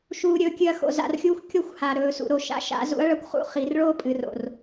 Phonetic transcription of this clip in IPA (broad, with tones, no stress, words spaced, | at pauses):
ʃuː˨ɾʲɵː˨kʲɨ˨ɐ̯ xo̰˨za̰˨rxʲuː˦xʷ kʲo˦xʷ ha˨ ɾɵː˨sṵ˨ ɾo˨ʃa̰˦ ʃa̰˨˦zṵ˦ɐ̯ ɭɐ˦kʷχṵ˦ χi˨˦rɭoː˦ pʼɨ˨ro̰˨r